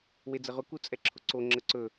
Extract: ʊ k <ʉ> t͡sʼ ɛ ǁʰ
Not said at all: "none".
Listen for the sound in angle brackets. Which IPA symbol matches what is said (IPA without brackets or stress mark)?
u